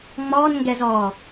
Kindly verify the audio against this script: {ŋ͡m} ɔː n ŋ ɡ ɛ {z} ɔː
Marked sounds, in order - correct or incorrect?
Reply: correct, correct

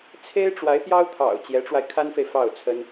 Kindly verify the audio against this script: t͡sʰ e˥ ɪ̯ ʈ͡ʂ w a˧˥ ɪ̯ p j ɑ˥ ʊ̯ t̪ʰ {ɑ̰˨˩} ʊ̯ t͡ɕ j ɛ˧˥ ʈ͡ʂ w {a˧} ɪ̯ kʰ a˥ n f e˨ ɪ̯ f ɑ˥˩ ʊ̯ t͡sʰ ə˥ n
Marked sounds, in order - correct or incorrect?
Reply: correct, correct

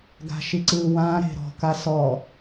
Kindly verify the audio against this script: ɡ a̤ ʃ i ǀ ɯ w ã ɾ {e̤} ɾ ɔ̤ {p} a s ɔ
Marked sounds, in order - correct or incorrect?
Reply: correct, incorrect: k

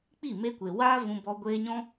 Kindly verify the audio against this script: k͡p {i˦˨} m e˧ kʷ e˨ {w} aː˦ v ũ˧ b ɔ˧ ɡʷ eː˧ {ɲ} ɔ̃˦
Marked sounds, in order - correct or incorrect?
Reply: correct, correct, correct

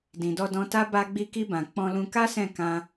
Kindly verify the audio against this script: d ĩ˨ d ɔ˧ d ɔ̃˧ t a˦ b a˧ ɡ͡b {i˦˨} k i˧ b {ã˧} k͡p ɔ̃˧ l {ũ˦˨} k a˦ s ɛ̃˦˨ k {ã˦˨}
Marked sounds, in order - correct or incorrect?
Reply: incorrect: i˧, incorrect: ã˨, incorrect: ũ˧, incorrect: ã˧

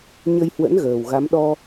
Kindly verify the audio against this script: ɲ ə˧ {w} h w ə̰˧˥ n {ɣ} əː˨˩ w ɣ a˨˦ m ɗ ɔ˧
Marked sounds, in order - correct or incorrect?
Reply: incorrect: j, correct

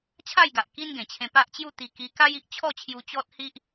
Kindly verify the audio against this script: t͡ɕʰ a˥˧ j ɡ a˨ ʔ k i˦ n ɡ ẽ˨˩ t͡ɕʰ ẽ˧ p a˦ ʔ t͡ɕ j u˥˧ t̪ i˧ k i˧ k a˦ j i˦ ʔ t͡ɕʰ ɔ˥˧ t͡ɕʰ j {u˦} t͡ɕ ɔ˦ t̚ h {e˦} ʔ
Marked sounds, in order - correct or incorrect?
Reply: incorrect: u˧, incorrect: i˦

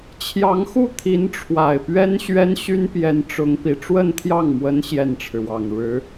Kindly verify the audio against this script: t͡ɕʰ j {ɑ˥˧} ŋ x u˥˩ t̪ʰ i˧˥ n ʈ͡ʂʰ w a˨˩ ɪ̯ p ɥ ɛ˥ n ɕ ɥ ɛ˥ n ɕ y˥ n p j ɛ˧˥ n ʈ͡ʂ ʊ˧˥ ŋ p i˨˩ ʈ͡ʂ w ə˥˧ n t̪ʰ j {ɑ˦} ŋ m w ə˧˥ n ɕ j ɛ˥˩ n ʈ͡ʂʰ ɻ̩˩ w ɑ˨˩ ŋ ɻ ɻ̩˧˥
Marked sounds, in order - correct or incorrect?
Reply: incorrect: ɑ˧˥, incorrect: ɑ˥˩

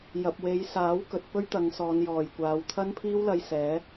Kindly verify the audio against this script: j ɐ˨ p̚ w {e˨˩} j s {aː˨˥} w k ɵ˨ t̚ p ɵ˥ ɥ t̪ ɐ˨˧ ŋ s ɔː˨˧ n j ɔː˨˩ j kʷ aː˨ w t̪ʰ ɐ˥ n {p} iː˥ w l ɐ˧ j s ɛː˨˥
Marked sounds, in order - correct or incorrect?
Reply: incorrect: e˨˧, correct, incorrect: pʰ

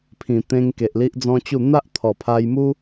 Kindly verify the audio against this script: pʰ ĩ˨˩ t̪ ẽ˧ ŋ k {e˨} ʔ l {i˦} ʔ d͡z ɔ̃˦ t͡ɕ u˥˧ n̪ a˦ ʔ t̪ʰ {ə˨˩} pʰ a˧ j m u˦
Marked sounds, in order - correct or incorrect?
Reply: correct, correct, incorrect: ɔ˨˩

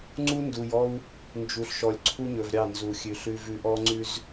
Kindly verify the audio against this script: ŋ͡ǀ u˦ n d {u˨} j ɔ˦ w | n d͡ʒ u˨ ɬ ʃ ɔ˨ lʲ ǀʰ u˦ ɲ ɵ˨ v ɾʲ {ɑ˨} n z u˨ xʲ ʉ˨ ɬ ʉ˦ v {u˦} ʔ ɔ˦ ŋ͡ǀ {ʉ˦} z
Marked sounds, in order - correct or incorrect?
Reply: correct, incorrect: ɑ˦˨, incorrect: ʉ˦, correct

